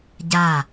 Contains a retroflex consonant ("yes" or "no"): no